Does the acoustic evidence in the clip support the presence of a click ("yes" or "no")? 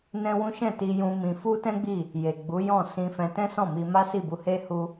no